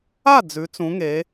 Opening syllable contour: falling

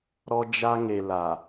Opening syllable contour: high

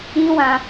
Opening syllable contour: high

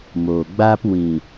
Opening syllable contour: low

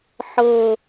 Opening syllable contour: high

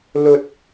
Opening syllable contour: high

